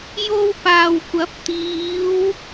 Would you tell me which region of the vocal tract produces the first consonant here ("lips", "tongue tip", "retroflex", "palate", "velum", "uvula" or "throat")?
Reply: palate